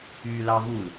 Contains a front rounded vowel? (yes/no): yes